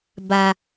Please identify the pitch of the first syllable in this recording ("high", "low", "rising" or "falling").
low